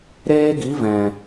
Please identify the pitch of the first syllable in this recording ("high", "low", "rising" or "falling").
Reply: high